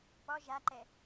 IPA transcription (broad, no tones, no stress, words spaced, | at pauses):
pɔ ʒaǃɛ